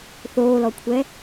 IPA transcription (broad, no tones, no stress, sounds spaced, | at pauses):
θ oː l ɔ kʷʰ ɛ